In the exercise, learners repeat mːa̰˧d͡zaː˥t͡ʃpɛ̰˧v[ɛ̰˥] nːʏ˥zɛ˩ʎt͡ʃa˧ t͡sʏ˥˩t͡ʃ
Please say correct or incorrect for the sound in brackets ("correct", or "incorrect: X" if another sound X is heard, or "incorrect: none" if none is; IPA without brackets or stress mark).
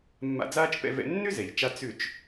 incorrect: ɛ̰˧